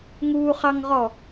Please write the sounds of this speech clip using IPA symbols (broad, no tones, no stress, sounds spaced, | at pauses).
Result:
ŋ uː χ ɑ ŋ ʁ ɔ